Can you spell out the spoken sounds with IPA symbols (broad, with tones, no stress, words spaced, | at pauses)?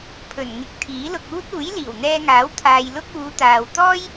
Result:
pʰɵ˨˩n ŋɪ˨˥k̚ t̪ʰiː˨˥lʊ˧k̚uː˥t̚ uː˨˥jliː˨˩wn̪ɛː˧ŋaː˨˥w t̪ʰaː˧jlʊ˥k̚ uː˨˧t̪aː˨w t̪ɔː˥j